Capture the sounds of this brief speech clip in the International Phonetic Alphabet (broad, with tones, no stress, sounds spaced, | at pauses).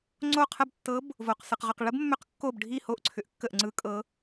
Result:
ŋ͡ǀ o˦˨ qʰ ə˦˨ b tː ɤ˧˥ b | v o˨ q s ɯ˨ q ʁ ʏ˦˨ q ɭ ə˧˥ b mː ʏ˧˥ q kː o˦˨ b ɖʱ i˦˨ h o˦˨ ʔ ǀʰ ʏ˨ ʔ kː ə˦˨ ʔ ŋ͡ǀ ɯ˧˥ kʼ ɤ˧˥